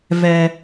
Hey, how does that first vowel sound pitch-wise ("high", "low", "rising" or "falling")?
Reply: low